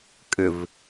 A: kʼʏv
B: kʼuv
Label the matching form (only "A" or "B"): A